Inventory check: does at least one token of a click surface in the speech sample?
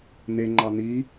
yes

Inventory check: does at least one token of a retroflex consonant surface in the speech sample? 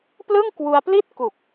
no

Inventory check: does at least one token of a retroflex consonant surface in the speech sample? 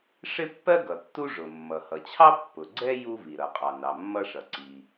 yes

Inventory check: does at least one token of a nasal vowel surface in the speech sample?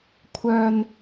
no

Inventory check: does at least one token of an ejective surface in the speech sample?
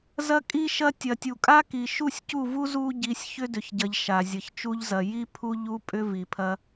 yes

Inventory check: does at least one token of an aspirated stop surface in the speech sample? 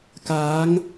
no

